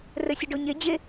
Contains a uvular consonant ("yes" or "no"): no